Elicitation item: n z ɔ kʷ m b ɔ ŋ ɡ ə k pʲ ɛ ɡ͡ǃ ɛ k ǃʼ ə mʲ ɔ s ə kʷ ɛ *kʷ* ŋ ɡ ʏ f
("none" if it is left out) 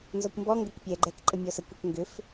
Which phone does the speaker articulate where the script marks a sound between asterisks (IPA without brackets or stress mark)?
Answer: k